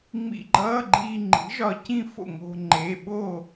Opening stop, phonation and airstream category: click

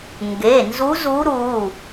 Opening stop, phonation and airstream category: plain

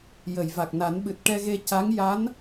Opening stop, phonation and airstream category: plain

